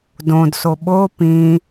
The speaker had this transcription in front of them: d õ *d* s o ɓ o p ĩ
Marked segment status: correct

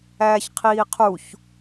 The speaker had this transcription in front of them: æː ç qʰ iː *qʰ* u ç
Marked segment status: correct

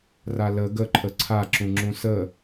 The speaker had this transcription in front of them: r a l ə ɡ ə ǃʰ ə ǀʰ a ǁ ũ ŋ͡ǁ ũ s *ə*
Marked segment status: correct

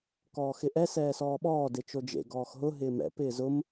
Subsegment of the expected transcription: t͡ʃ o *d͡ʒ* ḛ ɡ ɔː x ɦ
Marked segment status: correct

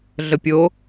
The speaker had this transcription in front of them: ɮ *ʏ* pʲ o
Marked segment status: incorrect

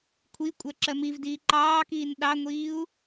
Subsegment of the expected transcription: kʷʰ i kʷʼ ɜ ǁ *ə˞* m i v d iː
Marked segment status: incorrect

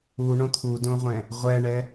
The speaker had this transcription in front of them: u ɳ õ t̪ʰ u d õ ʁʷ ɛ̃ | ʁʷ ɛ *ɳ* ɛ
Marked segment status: correct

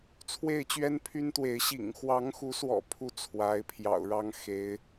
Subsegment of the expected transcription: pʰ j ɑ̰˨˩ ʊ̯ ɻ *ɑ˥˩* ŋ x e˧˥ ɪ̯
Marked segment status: incorrect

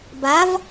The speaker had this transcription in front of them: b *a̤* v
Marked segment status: incorrect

